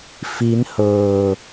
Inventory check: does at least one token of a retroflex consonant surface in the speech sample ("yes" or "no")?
no